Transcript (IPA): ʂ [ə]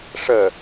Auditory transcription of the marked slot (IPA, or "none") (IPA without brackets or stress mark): ə